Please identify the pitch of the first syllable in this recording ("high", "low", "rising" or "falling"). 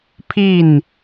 falling